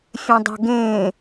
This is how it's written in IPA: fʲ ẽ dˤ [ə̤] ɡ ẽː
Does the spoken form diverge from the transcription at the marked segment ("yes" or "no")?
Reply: no